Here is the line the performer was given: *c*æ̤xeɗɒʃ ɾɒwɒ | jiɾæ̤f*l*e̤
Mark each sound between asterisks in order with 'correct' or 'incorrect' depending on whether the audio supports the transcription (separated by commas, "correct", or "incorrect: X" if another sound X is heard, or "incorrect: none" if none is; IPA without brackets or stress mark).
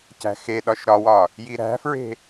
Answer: correct, incorrect: ɹ